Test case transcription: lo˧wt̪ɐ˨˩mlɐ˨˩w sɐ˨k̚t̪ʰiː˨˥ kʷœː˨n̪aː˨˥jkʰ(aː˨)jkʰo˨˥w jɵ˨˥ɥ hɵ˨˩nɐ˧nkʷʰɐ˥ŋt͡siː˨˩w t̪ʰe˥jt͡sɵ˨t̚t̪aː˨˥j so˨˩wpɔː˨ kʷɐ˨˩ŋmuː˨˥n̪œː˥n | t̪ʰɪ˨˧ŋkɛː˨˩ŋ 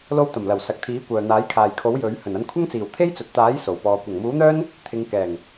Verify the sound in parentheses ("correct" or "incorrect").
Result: correct